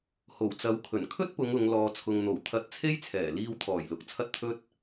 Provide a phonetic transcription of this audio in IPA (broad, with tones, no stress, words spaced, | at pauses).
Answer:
ho˨˩wt͡sɐ˨˥wkʰɵ˨˩n kʰɵ˥t̚pʊ˨˧ŋ ʊ˨˧ŋ lɔː˨t͡sʰʊ˨ŋn̪o˨˩wt̪ʰɐ˨˥t̚ t͡sʰe˥jt͡sʰɛː˨˩ liː˧wt̪ʰɔː˨˩jlʊ˨k̚ t͡sʰɐ˥t̚t̪ʰɵ˥t̚